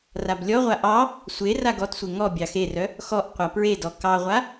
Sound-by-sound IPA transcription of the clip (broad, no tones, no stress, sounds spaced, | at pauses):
r a b lʲ ɔ ʁʷ a ʔ ɑ | sʷ e r a ɡ ɔ t sʷ e ŋ ɔ bʲ ɑ x e r œ | x ɔ ʔ qʷ a p ɹ e d ɔ k ɑ ʁʷ a